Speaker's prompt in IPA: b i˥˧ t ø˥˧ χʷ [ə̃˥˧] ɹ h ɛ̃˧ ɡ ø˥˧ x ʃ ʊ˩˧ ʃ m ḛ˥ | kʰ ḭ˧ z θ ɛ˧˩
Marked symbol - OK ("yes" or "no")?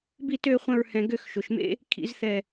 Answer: no